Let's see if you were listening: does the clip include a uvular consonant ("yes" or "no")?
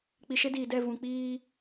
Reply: no